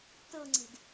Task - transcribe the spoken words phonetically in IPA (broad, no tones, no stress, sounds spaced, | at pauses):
t ɤ ŋ͡ǀ ɛ̤ d